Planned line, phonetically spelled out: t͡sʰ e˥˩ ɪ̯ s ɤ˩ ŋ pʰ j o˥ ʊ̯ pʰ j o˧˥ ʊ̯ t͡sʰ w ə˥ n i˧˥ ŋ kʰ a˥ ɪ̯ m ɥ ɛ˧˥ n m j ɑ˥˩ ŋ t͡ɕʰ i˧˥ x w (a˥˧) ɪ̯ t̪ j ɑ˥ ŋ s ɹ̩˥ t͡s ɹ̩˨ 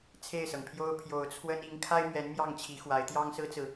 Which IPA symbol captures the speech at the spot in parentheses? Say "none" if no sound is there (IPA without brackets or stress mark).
a˧˥